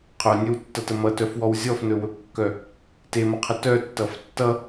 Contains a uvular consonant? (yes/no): yes